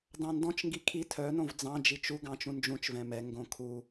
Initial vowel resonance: nasal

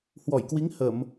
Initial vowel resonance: oral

